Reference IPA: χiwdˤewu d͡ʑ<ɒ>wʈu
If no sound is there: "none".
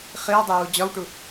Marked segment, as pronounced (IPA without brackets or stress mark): ɒ